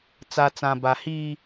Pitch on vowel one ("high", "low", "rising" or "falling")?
low